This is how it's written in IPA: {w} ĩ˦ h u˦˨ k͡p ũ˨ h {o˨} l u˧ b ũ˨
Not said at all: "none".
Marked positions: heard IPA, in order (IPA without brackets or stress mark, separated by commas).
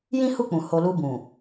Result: j, o˨